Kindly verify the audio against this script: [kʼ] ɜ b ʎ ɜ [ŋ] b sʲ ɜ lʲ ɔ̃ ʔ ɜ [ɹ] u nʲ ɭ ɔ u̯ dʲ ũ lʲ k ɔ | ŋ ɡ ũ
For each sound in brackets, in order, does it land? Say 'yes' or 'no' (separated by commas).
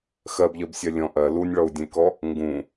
no, no, no